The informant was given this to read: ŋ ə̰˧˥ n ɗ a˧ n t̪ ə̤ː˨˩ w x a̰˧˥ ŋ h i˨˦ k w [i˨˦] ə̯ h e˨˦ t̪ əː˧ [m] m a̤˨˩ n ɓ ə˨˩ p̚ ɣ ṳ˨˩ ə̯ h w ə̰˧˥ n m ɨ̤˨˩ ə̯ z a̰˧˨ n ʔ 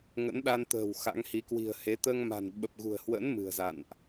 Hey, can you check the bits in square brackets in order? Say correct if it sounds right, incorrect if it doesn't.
incorrect, incorrect

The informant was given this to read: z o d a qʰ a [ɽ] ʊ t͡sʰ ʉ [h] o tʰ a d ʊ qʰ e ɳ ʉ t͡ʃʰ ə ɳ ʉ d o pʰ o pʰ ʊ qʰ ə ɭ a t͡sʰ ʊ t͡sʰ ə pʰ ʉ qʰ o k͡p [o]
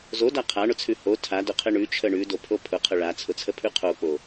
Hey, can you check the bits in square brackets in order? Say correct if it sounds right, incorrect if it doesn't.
incorrect, correct, correct

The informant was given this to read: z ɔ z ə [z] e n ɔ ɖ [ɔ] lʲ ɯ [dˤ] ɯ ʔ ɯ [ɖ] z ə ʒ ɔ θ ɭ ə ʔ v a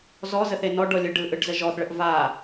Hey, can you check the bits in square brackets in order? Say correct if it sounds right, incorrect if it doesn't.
incorrect, correct, incorrect, correct

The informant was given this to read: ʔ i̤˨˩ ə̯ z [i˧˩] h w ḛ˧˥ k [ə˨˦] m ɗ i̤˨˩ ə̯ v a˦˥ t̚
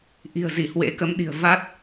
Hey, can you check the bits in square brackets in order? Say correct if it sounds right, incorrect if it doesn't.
correct, correct

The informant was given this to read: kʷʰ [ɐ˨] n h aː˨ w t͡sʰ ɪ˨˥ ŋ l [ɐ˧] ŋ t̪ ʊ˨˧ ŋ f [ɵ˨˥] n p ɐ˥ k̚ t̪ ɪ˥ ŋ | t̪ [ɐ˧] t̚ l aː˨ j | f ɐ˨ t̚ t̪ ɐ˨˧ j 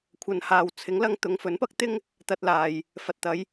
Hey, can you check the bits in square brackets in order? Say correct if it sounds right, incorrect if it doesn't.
correct, correct, correct, correct

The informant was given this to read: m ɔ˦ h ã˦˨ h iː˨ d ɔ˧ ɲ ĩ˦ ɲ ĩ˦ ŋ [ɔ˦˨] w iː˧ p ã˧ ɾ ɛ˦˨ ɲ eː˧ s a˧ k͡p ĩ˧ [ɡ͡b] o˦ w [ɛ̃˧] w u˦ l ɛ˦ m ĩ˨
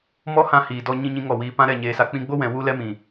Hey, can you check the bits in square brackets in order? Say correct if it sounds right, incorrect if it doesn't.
correct, correct, incorrect

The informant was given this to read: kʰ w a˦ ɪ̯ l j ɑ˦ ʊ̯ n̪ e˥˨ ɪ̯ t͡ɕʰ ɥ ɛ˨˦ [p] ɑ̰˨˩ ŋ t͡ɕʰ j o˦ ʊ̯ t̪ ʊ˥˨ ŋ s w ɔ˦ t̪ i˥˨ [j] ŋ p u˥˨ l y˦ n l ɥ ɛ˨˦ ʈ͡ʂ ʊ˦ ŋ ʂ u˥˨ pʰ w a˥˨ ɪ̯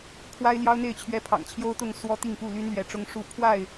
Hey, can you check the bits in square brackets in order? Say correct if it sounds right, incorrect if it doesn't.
incorrect, incorrect

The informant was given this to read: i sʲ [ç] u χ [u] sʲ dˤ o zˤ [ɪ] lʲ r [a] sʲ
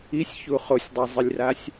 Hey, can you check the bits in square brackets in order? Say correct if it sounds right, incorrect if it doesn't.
correct, incorrect, correct, correct

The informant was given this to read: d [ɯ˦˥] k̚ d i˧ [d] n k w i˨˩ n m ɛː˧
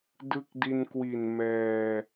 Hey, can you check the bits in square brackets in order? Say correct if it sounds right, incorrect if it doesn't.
correct, incorrect

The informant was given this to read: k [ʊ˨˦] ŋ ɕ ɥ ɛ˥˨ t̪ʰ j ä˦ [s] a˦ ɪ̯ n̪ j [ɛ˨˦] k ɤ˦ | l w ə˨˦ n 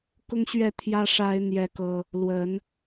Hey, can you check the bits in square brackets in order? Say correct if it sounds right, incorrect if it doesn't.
incorrect, incorrect, incorrect

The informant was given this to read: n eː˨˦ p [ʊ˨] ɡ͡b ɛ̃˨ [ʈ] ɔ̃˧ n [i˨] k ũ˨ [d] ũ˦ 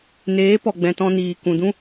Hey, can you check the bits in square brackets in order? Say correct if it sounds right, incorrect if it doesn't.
incorrect, incorrect, incorrect, correct

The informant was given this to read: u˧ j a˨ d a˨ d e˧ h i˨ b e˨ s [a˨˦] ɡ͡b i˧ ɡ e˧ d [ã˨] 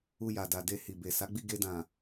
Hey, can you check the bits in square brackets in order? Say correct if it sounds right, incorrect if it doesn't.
correct, correct

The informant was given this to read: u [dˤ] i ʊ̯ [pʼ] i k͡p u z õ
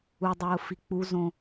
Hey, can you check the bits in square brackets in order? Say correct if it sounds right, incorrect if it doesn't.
correct, incorrect

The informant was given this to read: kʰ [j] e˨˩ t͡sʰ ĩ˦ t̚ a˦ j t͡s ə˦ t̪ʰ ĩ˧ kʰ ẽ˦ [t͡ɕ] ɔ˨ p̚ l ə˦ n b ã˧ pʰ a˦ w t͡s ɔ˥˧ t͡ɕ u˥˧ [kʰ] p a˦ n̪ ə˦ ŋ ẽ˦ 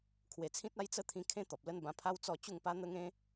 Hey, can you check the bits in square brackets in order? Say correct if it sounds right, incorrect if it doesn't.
incorrect, incorrect, incorrect

